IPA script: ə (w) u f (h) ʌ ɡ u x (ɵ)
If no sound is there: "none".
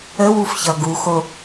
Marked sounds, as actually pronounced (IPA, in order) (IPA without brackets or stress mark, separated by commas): w, ç, o